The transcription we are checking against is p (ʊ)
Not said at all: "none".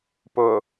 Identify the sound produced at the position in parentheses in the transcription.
ʊ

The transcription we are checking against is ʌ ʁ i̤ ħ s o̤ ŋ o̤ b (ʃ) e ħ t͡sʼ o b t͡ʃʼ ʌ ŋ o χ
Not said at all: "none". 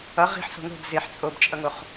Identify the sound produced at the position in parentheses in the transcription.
z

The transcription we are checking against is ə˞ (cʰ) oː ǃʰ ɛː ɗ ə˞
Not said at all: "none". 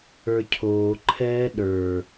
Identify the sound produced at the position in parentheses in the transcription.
cʰ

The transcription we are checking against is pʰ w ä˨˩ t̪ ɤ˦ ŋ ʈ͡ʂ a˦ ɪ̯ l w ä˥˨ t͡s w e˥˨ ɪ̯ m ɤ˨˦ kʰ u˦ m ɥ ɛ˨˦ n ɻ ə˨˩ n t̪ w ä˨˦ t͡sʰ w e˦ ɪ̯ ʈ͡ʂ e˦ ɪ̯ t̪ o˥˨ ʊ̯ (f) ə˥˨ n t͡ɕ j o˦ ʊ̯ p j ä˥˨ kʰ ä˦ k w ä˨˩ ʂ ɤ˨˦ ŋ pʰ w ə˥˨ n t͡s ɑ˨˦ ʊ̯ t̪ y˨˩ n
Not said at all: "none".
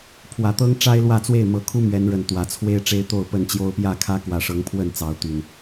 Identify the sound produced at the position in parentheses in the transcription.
p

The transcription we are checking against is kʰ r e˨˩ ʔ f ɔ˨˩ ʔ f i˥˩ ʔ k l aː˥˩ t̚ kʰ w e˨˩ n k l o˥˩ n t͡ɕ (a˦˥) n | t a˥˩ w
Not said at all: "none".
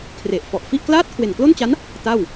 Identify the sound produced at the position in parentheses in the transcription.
a˦˥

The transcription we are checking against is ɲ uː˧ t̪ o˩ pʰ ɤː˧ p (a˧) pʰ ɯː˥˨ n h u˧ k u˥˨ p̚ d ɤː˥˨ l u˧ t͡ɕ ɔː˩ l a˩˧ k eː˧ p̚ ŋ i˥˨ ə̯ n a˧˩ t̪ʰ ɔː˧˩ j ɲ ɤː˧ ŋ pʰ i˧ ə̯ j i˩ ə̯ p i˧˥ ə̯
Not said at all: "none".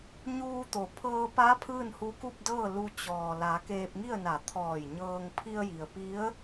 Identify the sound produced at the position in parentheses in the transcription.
a˧˥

